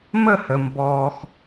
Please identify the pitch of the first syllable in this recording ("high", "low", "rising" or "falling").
falling